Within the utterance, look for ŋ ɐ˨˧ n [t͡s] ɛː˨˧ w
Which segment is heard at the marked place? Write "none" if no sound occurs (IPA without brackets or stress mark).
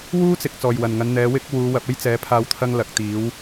n̪